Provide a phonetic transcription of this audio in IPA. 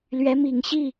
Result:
l ɥ ɛ˧˥ m i˨˩ ŋ ɕ i˥˩

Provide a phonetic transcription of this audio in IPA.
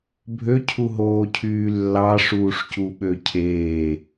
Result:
bʱ ø cʰ u ɦ oː cʰ yː lː ɑ ʂ uː ʂ c u ɓ ø cʰ eː

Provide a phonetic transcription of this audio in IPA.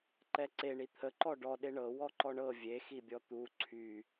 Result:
ǃ ɛ ǀ e ɳ i t̪ʰ ə ǃ ɔ ɖ ɔ ɗ e ɳ ɤ w ɔ ǃ ɔ ɳ ɤ vʲ e x i bʲ ɔ t̪ u ǀʰ y

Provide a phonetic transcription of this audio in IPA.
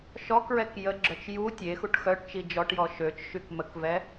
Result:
ʃ ɔ k ɹ ɛ k j ə ɡ͡ǁ œ t͡ʃ j u tʲ e x u ʈ x œ ʈ t͡ʃ i d͡ʒ ɔ ʈ j ɔ ʃ ø t͡ʃ ʃ y k m ə k v ɛ

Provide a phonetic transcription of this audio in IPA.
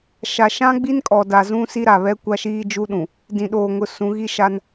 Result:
ʃ a˨ ʃ ã˦ ɡ͡b i˦ n kʼ ɔ˨ d a˨ z ũ˦ s i˦ ɾ a˨ β ɛ˦ kʷ a˦ ʃ iː˦ d͡ʒ u˦ ɗ ũ˨ | d ĩ˨ ɗ oː˨ ŋ ʊ˨ s ũ˨˦ ɣ i˦ ʃ a˦ n

